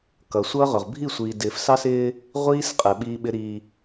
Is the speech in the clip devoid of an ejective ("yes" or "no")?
no